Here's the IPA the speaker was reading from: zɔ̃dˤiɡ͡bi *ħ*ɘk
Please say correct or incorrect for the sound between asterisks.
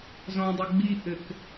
incorrect